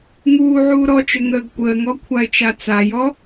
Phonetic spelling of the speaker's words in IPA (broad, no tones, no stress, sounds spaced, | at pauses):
ŋ uː ʕ uː ɾ ɔ t͡ʃ ʏ ŋ əː ɡ kʷ əː ŋ ɔ kʷʰ a ɪ̯ t͡ʃ a t͡s a j ɔ